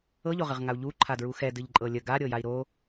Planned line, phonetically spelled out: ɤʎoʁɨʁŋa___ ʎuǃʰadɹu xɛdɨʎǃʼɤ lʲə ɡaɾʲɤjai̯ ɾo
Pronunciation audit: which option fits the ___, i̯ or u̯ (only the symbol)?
u̯